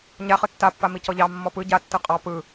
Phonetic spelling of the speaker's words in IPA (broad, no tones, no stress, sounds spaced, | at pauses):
ɲ a χ ɯ tː a pː a m i c ɔ ʎ ɑ mː ɔ p ɯ ɟ a tː ɯ qʼ ɑ p ɯ